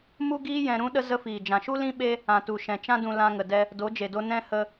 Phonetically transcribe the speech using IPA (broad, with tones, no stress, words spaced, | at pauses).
mu˦ɡiː˦jɛ̃˧ ɾũ˦ɗə˦ zə˧fiː˨ d͡ʒã˨ʃu˦ lĩ˦ɓe˦ | ã˨tu˨ʃɛ̃˨ t͡ʃã˧dũ˨ lã˧ ŋə˨ dɛ˧ | do˨˦d͡ʒe˨do˧ nɛ̃˧ hə˧